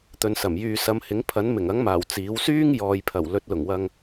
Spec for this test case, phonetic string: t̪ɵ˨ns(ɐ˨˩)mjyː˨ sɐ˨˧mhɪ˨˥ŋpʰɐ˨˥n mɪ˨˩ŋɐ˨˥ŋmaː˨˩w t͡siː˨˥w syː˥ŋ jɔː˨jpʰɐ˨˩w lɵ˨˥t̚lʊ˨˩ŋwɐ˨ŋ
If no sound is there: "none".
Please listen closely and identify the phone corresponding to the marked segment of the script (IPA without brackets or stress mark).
ɐ˨˩